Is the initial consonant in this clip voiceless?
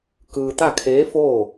yes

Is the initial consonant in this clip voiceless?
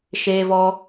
yes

